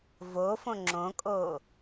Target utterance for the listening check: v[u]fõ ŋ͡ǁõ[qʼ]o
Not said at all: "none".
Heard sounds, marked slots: o, kʼ

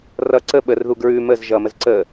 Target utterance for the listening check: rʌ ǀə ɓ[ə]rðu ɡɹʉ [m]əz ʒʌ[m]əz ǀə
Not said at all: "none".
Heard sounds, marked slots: ə, m, m

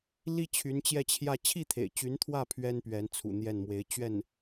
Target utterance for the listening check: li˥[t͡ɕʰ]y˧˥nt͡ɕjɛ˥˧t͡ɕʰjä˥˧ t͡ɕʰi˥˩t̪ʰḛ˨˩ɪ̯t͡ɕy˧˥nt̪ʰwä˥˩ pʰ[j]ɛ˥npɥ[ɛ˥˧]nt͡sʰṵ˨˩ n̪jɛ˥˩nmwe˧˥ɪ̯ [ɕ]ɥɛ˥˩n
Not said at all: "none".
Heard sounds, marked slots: t͡ɕʰ, ɥ, ɛ˧˥, t͡ɕ

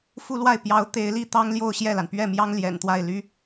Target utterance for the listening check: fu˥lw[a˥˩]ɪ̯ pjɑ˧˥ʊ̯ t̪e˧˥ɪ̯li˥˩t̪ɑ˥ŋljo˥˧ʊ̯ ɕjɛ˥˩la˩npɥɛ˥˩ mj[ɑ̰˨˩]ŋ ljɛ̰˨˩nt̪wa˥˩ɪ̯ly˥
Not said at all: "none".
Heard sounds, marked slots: a˥˩, ɑ˥

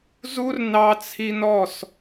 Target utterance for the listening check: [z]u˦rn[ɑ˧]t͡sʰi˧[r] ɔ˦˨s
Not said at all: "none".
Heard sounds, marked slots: z, ɑ˧, n

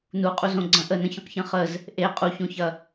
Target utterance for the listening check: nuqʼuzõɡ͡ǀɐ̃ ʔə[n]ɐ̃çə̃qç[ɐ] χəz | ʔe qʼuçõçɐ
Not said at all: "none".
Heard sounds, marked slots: n, ɐ̃

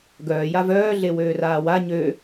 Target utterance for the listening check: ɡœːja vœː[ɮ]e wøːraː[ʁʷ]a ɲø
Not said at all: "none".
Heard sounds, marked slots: ɮ, w

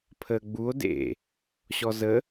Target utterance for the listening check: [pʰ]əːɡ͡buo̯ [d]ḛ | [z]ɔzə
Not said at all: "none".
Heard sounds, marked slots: pʰ, d, ɕ

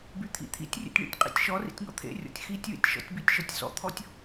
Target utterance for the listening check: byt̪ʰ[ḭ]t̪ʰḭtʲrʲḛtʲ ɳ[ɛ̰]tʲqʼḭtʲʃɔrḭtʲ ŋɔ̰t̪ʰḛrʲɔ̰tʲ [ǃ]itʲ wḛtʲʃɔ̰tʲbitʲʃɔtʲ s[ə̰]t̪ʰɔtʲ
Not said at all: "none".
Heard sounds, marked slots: ḭ, ḛ, x, ɔ̰

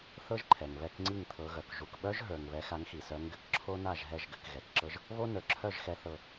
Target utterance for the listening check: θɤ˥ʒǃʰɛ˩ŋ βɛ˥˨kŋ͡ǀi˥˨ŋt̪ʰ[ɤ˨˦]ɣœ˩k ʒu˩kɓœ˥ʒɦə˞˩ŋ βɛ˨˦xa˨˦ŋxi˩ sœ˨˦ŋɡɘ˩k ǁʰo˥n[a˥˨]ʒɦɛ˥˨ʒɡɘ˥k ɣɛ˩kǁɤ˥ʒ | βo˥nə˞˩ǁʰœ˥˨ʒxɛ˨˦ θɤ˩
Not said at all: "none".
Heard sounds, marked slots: ɤ˨˦, a˥˨

